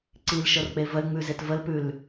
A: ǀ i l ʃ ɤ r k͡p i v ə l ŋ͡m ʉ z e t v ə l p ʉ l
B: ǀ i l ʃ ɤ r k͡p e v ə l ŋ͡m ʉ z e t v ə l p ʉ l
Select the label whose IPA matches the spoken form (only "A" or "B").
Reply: B